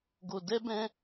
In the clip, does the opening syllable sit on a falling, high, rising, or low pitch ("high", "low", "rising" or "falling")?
low